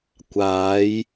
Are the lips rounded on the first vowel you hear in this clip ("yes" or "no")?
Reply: no